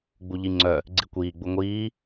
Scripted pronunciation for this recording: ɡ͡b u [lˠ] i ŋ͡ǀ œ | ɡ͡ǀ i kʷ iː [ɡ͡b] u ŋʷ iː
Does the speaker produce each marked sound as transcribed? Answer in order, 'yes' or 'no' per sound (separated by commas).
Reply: no, yes